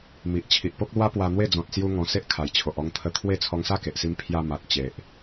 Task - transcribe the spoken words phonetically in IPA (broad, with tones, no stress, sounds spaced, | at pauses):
m i˨ ʔ t͡ɕʰ i˨ ʔ p o˦ k̚ l w a˦ p w a˧ n̪ w e˥˧ d͡z ɔ̃˨ t̚ s j u˦ ŋ ɔ̃˧ s e˦ ʔ kʰ a˨˩ j t͡ɕʰ o˨ ʔ ɔ˧ ŋ t̪ʰ ə˧ t̪ʰ w e˥˧ t͡sʰ ɔ˧ ŋ s a˥˧ k e˨ ʔ s i˧ m pʰ j a˧ m a˨ t̚ t͡ɕ e˨ ʔ